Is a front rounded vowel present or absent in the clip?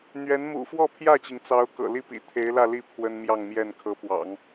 absent